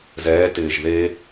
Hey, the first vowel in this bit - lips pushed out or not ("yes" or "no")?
no